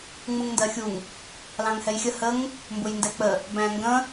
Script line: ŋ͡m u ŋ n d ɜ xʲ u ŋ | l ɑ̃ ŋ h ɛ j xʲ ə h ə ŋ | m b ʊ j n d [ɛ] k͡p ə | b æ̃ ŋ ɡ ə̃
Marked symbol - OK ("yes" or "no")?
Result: yes